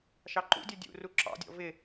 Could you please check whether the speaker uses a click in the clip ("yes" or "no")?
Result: yes